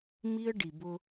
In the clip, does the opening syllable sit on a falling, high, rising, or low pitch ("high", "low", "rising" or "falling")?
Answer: high